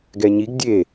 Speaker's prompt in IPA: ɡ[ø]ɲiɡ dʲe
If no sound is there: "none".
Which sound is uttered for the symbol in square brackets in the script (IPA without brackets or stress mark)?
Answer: ɛ